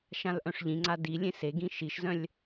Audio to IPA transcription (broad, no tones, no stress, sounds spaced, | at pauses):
ʃ ã l ʔ œ̃ ʂ ʎ ĩ ŋ͡ǀ a d i lʲ ẽ s e ɡ ĩ ʃ i ʃ z œ̃ lʲ